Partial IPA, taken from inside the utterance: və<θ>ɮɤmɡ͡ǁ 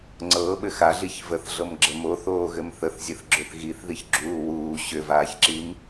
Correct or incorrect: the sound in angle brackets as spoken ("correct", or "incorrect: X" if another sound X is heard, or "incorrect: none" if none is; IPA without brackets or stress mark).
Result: correct